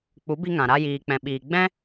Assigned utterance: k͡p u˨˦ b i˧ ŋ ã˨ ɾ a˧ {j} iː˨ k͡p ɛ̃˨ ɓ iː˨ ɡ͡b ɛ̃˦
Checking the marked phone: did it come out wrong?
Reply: no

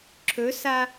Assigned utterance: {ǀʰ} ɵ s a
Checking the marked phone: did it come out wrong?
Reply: yes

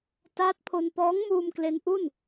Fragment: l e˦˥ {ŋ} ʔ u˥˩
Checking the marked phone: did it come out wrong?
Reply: yes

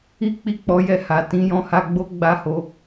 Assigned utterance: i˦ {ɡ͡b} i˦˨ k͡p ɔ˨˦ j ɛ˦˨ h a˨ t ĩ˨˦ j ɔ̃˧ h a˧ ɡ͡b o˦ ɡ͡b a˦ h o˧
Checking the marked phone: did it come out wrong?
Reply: yes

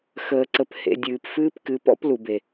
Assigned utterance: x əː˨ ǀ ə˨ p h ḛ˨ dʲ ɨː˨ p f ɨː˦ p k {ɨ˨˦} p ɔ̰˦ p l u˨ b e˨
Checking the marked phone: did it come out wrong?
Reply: no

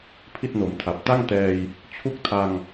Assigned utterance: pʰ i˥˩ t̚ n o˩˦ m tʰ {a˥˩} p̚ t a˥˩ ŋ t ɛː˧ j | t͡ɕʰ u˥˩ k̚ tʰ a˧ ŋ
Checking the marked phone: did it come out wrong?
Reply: yes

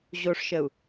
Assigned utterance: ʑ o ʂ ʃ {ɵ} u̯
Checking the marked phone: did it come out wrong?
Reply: yes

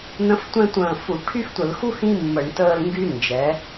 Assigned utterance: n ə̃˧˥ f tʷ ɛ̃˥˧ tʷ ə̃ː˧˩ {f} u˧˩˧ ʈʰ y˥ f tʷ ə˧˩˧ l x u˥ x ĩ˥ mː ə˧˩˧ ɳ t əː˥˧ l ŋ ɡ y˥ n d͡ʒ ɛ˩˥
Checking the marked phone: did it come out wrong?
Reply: no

